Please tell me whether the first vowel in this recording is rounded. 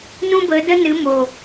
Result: yes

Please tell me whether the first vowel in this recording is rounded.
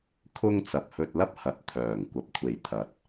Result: yes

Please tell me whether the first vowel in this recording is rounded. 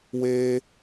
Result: no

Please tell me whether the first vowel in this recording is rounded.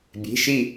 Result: no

